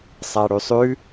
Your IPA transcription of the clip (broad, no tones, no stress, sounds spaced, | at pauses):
sˤ a ɽ ʉ sˤ ʉ